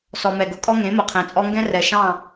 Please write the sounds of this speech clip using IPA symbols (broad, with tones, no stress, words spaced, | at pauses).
sɔ˨ mɛ˨ɡʊ˨kʼɔ˦ ŋẽ˨˦mʊ˨qʰɛ̃˨t͡sʼɔ˦ ŋɡɛ̃˦ rɛ˨ʃɑ̃˦˨